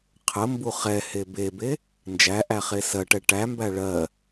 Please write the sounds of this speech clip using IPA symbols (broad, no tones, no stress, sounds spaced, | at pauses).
qʰ ə m b u χ ɛ h e b e b e | n d͡ʒ æ ʔ æ χ e s ɜ ʈ ɛ ʈ æ m b æ ɭ ɜ